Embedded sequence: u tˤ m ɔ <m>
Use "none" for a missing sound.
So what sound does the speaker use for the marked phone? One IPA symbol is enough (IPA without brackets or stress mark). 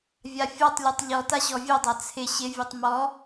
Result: none